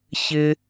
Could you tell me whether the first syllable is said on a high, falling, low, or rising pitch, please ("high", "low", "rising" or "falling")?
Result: high